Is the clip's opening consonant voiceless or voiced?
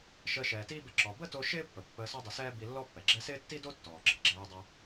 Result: voiceless